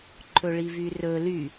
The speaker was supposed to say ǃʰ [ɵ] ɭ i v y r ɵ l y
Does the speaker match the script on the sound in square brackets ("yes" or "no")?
yes